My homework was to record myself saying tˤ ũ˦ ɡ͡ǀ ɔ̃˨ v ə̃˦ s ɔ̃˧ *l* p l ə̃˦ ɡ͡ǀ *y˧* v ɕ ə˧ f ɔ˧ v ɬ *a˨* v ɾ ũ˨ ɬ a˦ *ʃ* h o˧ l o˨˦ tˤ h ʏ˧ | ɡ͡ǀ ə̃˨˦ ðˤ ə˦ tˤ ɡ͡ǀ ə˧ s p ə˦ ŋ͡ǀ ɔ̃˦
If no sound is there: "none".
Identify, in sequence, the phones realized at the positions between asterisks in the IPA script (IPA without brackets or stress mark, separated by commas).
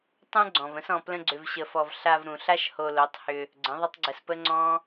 none, ʏ˧, a˧, ʃ